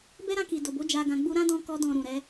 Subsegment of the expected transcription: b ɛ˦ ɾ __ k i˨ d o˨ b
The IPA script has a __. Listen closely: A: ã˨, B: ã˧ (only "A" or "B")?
B